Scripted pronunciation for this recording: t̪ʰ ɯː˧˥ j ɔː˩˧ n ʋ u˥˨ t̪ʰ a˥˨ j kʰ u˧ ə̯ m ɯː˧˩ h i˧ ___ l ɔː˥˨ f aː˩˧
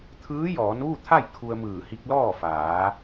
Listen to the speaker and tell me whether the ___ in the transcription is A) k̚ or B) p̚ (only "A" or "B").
A